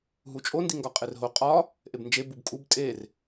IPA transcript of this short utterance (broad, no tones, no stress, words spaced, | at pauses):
ɦut͡ʃʼo ndiŋɡɒqʼerɦo qʼɒ | ʔebnd͡ʒe bubkʼub tʼer